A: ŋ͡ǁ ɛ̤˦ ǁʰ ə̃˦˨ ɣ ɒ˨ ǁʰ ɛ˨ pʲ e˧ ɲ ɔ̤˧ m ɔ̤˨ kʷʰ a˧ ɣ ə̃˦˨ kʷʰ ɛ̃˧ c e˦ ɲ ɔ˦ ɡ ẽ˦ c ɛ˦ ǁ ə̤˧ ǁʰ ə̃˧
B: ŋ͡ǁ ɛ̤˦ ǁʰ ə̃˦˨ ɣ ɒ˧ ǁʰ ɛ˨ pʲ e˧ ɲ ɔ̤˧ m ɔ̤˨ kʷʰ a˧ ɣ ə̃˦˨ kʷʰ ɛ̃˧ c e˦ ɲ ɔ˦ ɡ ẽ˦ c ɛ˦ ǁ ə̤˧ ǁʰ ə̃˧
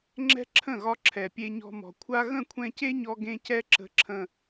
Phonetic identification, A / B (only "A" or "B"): B